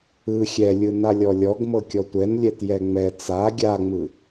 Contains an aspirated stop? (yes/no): no